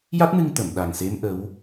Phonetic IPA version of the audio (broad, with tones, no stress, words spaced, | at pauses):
ja˦˥t̚nɨ˧ŋt̪ə˨˩˨m ɗa˨˩ŋse˧˥m ʔə˧˥w